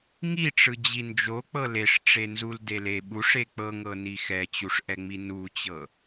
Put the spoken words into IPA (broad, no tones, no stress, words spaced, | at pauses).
ŋiʈ͡ʂɯ d͡ʑind͡ʒo k͡pɤleʂ ʈ͡ʂenzuldele ɓuʂe k͡pɤŋɤni xɛt͡ɕuʂʔɛŋ͡mi nut͡ɕɤ